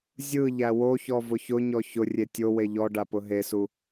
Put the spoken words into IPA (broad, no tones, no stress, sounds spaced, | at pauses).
zʲ ɯ ʎ æ w o ç ɔ v ʊ ç ʊ ɲ ɔ ç ʊ rʲ e tʲ o w e ʎ ɔ ɖ a p ʊ ɦ e s u